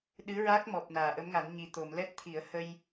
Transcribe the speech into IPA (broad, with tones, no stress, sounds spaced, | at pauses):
ɗ ɨ˧˥ ɹ a˦˥ k̚ m ɔ˨˩ p̚ n aː˨˩˨ ʔ ə˧˥ m ŋ a˨˩˦ n ɲ i˨˩ t̪ o˨˩˨ m l ɛ˦˥ t̚ t̪ʰ i˨˩˦ ə̯ h ə˧ j